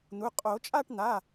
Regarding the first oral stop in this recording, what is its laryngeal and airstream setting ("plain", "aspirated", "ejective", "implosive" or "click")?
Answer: ejective